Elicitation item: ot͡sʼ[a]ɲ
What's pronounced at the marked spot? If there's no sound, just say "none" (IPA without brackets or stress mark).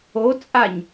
a